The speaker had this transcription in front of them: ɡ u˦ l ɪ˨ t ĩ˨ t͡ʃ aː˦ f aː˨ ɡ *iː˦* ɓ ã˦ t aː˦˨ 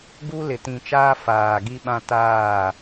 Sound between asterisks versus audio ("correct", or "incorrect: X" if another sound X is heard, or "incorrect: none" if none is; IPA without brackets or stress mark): incorrect: i˦